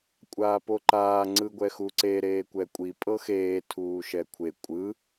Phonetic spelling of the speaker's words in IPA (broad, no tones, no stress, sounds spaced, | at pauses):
kʷʼ aː p o ǃ aː ŋ͡ǀ ɯ ɡʷ ɛ x u ǀ e ɾ eː kʷ ɛ kʷʼ i pʼ ɤ x eː tʰ uː ʃ ɛ kʷʰ e kʷʼ ɯ